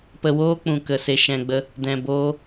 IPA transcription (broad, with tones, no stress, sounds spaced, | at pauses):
p ə˧ w oː˦ k͡p ũ˨ k ə˨ s e˧ ʃ ɛ̃˧ ɡ͡b ə˦ | d ɛ̃˨ b oː˧